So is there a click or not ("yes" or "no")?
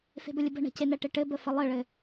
no